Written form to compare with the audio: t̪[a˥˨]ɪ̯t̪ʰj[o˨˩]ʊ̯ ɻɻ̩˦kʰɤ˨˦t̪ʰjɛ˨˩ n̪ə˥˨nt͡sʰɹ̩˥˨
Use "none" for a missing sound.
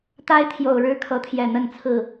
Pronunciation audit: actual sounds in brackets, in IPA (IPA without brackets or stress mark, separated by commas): a˦, o˨˩